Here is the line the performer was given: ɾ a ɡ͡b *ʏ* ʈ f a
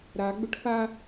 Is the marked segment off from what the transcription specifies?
no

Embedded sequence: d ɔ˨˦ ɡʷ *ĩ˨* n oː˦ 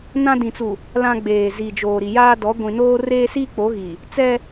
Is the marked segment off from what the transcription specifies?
no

